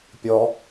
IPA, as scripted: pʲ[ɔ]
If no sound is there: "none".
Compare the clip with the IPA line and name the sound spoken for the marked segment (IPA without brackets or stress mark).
ɔ